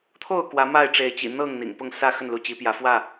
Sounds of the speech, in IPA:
t̪ʰ o˥˨ ʊ̯ k w ä˨˦ m a˥˨ ɪ̯ ʈ͡ʂ e˨˦ ɪ̯ t͡ɕ ḭ˨˩ n̪ ɤ˥˨ ŋ n̪ ḭ˨˩ ŋ p ʊ˥˨ ŋ s ä˥˨ x ə˥˨ n l u˨˦ t͡ɕ i˨˦ p j ä˨˦ f w ä˥˨

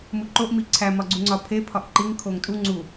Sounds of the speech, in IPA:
m u ǃ o ʔ m i ǀʰ æ m ɒ ɡ͡ǀ u ŋ͡ǀ ɒ pʰ e pʰ ɒ ʔ ǃ i ŋ kʰ o ŋ tʼ u ŋ͡ǀ u

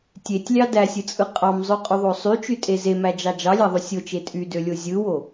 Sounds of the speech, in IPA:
tʲ e tʲ lʲ ɑ d æ sʲ ɯ t͡sʼ ɯ qʼ ɑ m zˤ ø qʼ y ðˤ o sˤ y t͡ʃ y tʼ e z e m æ d͡ʒ ɑ d͡ʒ ɑ lʲ æ ðˤ y sʲ o t͡ʃ e tʼ y d ø lʲ o zʲ ɯ w o

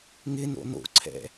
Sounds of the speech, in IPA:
ŋ ɪ n o̰ n o̰ ǀʰ ɛ̰

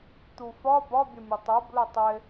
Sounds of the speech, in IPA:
t̪ u f ɒ b ɒ bʲ ʊ mʲ ʊ tˤ ə b l ʊ tˤ ɪ

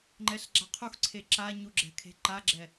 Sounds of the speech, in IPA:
ŋ͡ǃ ɛ ɬ ɡ͡ǁ a qʰ u x ǀʰ e ǁ a ɲ u ɡ͡ǁ ɛ̤ kʰ e̤ ǃ a ɡ͡ǁ ɛ

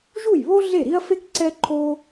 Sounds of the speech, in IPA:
ʒ u˥˩ j β o˥ ɮ e˥˩ ɾ i˥ ɐ̯ f e˥ k ǀ ɛ˥ ǃʰ o˥

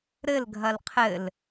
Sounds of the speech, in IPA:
ɾ ɘ l ɡʱ ɐ l qʰ ɘ l

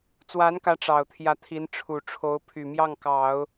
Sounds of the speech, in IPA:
t͡s w a˧˥ n k ä˧˥ ʈ͡ʂ ɑ˨˩ ʊ̯ t̪ʰ j ä˧˥ t̪ʰ i˧˥ n ʈ͡ʂʰ u˨˩ ʈ͡ʂʰ o˧˥ ʊ̯ pʰ y˨˩ m j ɑ˥˩ ŋ k ɑ˨˩˦ ʊ̯

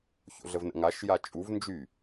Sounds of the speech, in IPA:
ç o̰ ɮ ə v n ə̰ ŋ a ʃ j a t͡ʃʼ u v n d͡ʒ y

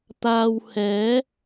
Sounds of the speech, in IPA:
t̪ aː˧ w h ɛː˨˥

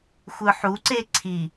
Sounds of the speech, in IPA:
xʷ ɯ ħ u ǀ e ǀʰ i

